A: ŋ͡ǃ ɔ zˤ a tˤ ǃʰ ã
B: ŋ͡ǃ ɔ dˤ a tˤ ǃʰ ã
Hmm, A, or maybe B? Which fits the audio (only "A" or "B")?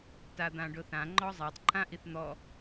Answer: A